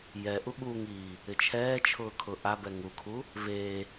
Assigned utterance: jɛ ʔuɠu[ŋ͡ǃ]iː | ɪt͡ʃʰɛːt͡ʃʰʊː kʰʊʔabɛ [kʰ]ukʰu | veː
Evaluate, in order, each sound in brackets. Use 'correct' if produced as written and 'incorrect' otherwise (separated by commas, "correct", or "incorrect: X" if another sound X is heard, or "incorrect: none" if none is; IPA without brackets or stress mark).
incorrect: ŋ, incorrect: ŋ